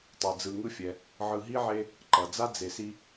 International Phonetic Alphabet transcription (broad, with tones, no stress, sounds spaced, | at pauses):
tˤ ɯ˩ d͡z ɯ˨ ŋ ɯ˦ fʲ ɛ˨ | ʕ ɯ˨ ɦ i˥ ʕ e˦ | ǃ ʌ˩ d͡z a˥ d͡z e˨ s i˦